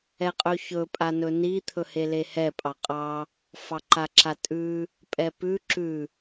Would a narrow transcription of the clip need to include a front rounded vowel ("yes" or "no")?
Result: no